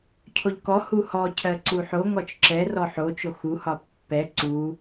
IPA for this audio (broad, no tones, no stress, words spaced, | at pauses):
cʰoʎkɔhu hɔ cʰɜǀuħo ŋɔt͡ʃǁɛ rɔħot͡ʃo xuhɒ pːɛ ǀu